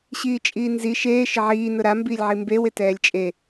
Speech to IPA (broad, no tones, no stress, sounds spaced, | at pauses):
ɕ iː t͡ʃʼ iː n z i ʃ eː ʃ ɪ ʕ iː n ʊ ɾ a m b iː lʲ ʕ i m b e w ɪ t ɛː lʲ t͡ʃʼ e